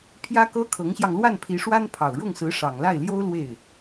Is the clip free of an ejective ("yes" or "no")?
yes